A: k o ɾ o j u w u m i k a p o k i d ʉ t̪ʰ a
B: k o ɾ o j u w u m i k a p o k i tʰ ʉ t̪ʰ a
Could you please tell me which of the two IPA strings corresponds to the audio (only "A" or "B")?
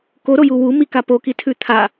B